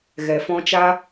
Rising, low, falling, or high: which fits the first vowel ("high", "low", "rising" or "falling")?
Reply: low